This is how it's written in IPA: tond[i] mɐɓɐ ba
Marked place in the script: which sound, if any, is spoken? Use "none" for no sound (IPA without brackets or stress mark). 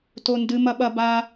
ɨ